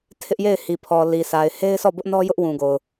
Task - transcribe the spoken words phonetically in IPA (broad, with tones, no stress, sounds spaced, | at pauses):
tʰ ɪ˦ ʔ j e˦˨ ɪ̯ h i˨ pʰ ɔ˨ l i˨ sʰ a˨ ɪ̯ h e˦ ɪ̯ sʰ ɔ˦˨ b ʊ˦ ʔ n ɔ˦ j ʊ˦ ʔ w ũ˨ ɡ o˨ ʊ̯